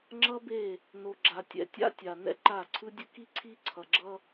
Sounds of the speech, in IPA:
ŋ͡ǁʌ˦be˦˨ | no˨ɡ͡ǁa˨tʲɛ̰˦ tʲa̰˦tʲa˨ nɛ̰˦ǃa˦˨ǀʰɯ˦dʲɯ˦ ki˦ǀʰi˦ǀʰʌ˨ɡ͡ǁʌ˦

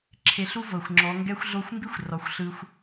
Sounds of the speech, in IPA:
ǁʰe˧ɬu˦vɤ˨xʷŋ͡ǁɔ˨˦ ŋɡɛ˦xʷɮo˦xʷ mbi˦xʷ rɔ˨xʷ ɬɯ˧xʷ

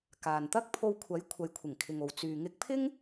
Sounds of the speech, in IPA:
kaː˨nt̪ɐ˥k̚ pʰo˧wkʷʰɐ˨˥j kʷʰɐ˨˥jkʷʰɪ˨˩ŋkʰɪ˨ŋo˨w t͡syː˨ŋɪ˧k̚pʰɪ˥ŋ

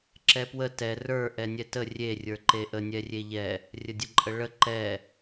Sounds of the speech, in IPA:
ǁɛpwə tɛ rə˞ ʔɛnʲɛtə rʲe rʲə˞ǃeʔə nʲɛrʲeʎɛ | rʲədʲəǃʼəɭə ǃɛ

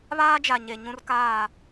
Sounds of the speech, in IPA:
βaː˦d͡ʒa˨ ɲe˨ ɲũ˦rkaː˦˨

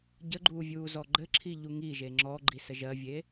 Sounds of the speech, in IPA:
ɟəɡ͡ǃuːvʲuːzɔ ɡ͡ǃɘǁʰiʎu ŋiʒe ŋ͡ǁɔɡ͡ǃisə ʒɜvʲe

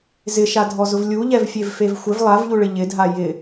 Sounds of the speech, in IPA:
zɪʃadʱɔzʊv lʲuʎɛvfʲevfev xʷɪv lˠavʎuɭɪ ʎɪdʱa jɪ

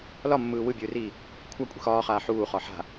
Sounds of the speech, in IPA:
lɒmːɯː wɯbʲɯːriː | kʷʰakʷʼi̤x ɒːχaː ħuːχɒ ħa̤

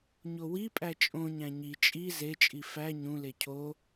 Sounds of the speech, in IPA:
ɲowipʼæ t͡ʃʼõɲæ̃ ɲi t͡ʃʼi zet͡ʃʼi fæ ɲũle cʰo

